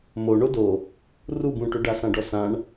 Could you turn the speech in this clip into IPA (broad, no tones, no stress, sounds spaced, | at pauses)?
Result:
m o ɳ o d o | r u b ũ ʈ ʏ ɖ a s ã ɖ ɔ s ã ɳ